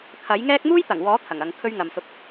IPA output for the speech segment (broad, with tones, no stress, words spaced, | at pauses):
kʰɐ˨˥jŋɛː˥k̚ muː˥jt̪ɐ˨˩ŋ wɔː˨˥ t̪ʰɐ˨˩ŋɐ˨˧ŋkʰɵ˥ɥ ŋɐ˨msʊ˧k̚